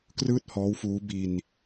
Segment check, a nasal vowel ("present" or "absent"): absent